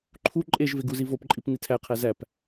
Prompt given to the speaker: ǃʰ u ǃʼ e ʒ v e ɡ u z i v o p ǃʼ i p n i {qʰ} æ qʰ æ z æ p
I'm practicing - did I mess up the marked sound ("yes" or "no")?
yes